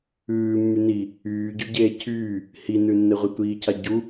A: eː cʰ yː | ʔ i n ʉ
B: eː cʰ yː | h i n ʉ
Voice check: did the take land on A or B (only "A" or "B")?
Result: B